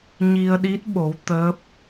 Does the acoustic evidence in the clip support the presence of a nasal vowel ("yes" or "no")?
no